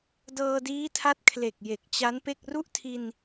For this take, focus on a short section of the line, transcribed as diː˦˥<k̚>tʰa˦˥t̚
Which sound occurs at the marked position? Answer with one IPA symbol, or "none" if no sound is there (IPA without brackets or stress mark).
none